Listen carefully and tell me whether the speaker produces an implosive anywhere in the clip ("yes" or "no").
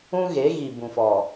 no